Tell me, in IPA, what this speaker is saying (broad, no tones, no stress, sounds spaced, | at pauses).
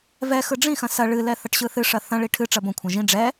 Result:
v ɛ x ɯ ɖ͡ʐ ĩ x ɐ̃ s ɐ ɭ ɨ l ɛ θ ɐ ʈ ɕ ɯ θ ɨ ʂ ɐ θ ɐ̃ ɭ i ʈʰ ɨ ʈ͡ʂ ɐ b õ kʷʰ ɐ̃ ʒ ĩ ɖ͡ʐ ɛ